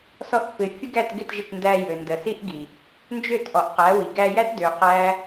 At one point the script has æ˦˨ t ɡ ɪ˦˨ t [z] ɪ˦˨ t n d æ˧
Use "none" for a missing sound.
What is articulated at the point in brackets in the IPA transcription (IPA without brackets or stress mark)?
ʒ